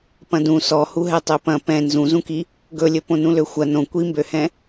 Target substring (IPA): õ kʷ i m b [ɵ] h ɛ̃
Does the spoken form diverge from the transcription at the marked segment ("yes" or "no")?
yes